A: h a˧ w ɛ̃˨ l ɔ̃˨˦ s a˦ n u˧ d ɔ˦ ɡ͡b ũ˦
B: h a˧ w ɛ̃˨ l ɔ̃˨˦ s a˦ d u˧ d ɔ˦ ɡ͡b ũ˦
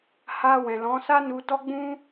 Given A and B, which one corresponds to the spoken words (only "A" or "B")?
A